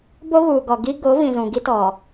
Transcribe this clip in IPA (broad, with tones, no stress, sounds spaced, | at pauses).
b o˦ ɣ uː˨ ɡ ɔ˨ ɡ i˦ ɡ o˨˦ v ĩ˨ z ũ˨ ɡ i˦ t ɔ˨